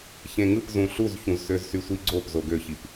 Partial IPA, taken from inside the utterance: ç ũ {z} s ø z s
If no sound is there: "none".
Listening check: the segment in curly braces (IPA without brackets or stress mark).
z